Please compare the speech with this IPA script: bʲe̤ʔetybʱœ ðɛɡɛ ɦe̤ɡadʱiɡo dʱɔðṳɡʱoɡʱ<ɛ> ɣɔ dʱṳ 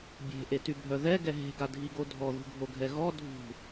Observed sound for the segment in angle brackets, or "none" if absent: ɛ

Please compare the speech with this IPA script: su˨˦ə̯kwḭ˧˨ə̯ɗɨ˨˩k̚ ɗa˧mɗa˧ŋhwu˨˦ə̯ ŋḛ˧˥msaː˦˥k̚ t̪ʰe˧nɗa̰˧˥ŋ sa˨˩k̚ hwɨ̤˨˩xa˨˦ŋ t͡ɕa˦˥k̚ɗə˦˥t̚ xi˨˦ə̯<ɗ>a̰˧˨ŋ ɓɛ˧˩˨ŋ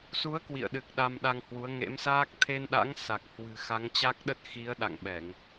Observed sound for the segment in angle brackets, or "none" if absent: ɗ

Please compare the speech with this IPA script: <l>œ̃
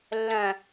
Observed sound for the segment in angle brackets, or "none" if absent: lː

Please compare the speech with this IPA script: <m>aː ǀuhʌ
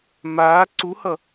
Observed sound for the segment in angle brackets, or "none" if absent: m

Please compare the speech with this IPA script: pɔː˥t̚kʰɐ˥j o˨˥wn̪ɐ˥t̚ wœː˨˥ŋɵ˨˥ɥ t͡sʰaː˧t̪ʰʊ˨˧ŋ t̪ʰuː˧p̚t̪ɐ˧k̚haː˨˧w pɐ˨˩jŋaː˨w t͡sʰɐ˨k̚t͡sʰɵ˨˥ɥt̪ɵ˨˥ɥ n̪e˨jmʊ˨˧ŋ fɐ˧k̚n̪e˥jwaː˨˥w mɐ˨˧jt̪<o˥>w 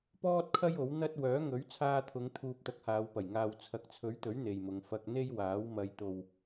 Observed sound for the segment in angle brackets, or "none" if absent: o˨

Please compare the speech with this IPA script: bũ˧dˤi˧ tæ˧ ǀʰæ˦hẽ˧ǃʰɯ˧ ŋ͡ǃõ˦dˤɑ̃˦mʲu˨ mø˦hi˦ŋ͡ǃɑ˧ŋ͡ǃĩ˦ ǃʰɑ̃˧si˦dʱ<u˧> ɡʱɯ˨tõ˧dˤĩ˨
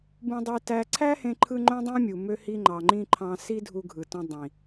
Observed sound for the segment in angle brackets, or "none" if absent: u˧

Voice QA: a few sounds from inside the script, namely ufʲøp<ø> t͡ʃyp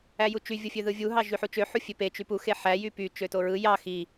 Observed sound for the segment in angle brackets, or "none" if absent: e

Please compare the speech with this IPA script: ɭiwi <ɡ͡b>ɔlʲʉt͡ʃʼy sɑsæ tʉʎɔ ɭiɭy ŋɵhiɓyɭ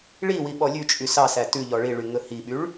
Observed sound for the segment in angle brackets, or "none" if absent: ɓ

